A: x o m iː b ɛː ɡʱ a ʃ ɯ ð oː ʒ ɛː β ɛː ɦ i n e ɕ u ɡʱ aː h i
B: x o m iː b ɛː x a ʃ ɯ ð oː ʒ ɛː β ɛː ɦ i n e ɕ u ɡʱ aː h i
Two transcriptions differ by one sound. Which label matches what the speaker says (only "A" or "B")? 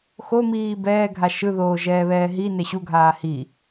A